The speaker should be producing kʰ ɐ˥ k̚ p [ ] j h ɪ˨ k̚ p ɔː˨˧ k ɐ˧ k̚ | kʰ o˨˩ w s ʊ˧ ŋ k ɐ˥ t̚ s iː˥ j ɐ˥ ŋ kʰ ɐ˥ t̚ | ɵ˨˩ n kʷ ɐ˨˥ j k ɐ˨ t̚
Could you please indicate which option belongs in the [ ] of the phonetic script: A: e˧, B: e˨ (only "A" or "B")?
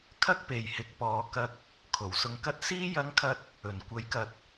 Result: B